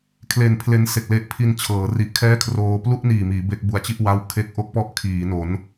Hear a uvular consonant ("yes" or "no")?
no